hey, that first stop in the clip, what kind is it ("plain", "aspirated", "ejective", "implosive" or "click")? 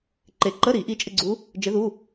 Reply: click